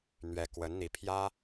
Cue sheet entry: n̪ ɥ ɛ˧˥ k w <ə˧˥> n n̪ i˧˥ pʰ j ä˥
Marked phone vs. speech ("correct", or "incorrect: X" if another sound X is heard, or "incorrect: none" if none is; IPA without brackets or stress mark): correct